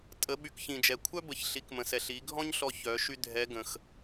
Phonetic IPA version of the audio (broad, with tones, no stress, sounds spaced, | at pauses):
tʼ ə˩˧ ɓ y˩˧ k ç ĩ˩ d͡ʒ ɛ˩ kʷʰ œ˥ b ə˩˧ ç ɬ i˩˧ k m ə̃˩ s ɛ˩ ɬ i˩˧ ɡʱ ɔ̃˥ ɲ ɬ ɔ˧ ç œ˩˧ ʃ y˥ dʱ ɛ˧˥ ɡ ə̃˩ x